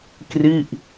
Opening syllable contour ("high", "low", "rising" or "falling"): falling